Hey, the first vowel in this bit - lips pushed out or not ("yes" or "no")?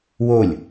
yes